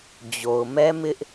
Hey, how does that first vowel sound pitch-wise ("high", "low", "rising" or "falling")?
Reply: low